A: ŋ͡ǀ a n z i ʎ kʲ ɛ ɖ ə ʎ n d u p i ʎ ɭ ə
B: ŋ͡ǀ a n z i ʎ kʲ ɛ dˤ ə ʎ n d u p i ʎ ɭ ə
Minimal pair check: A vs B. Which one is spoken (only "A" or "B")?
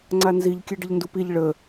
A